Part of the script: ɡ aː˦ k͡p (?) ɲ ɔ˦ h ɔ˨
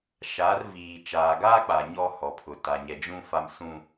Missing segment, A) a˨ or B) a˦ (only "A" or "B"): A